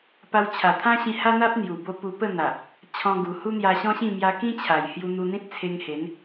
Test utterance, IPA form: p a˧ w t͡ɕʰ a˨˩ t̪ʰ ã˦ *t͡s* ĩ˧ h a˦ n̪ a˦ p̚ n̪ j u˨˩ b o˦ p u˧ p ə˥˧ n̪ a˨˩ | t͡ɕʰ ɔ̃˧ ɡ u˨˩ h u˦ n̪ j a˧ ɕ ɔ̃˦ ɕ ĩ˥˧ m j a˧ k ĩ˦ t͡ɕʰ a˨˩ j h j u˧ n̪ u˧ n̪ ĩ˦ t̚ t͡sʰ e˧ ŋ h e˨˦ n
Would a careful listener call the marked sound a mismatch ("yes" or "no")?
yes